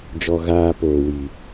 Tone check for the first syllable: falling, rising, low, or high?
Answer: low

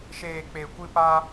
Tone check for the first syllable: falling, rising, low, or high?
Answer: low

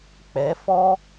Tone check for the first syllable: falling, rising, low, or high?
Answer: rising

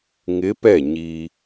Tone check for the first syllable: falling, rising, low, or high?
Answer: rising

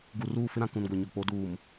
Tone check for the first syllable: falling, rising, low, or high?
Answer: low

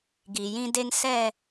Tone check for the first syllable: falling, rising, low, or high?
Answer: low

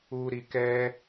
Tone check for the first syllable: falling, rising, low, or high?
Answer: low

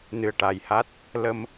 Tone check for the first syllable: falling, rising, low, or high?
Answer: low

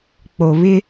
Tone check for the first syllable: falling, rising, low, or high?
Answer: low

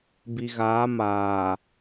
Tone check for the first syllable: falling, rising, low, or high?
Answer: low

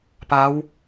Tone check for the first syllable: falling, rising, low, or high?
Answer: rising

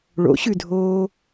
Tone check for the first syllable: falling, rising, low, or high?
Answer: rising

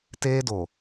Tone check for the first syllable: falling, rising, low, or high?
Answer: high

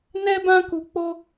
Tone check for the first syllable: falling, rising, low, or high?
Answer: high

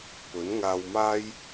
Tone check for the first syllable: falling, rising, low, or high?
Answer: rising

